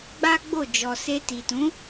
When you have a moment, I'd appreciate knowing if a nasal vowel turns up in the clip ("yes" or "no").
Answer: yes